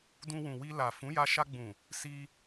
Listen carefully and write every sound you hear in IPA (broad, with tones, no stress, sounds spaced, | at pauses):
d ũ˧ w ũ˨ w i˧ l a˨ f ũ˨˦ j a˧ ʃ a˧ ɡ͡b ũ˨ | s i˧